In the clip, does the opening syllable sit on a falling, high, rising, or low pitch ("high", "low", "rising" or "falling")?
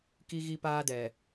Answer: high